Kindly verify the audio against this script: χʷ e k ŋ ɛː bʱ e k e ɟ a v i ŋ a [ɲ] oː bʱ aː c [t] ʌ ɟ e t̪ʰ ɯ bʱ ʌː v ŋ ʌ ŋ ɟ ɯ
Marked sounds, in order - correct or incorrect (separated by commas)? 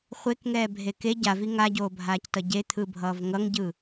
incorrect, correct